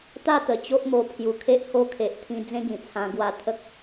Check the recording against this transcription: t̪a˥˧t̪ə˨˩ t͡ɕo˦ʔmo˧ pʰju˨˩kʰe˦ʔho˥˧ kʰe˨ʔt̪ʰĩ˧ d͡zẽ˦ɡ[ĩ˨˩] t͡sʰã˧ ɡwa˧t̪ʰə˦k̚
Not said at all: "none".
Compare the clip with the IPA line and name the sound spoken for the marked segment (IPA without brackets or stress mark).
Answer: ĩ˨˩